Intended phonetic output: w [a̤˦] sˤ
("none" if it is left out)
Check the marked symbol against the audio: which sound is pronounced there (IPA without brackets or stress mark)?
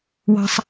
ɑ̤˦